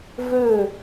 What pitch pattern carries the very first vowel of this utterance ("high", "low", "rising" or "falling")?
falling